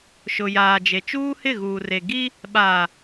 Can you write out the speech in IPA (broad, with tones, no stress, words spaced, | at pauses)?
ʃʊ˨jaː˨d͡ʒe˨ t͡ʃuː˦hɪ˦˨ɣuː˨re˨ ɡi˦ | ɓaː˨